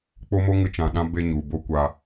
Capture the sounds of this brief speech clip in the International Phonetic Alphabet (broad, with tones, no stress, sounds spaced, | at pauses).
k͡p o˦ m o˦ ŋ ɨ˦ t͡ʃ ã˧ ɗ ã˦ b e˧ ɲ u˨ b o˧ kʷ a˧